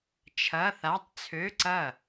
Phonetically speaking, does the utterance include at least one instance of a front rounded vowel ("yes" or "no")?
yes